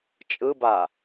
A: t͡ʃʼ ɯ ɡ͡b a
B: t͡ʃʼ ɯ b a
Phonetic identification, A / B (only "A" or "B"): B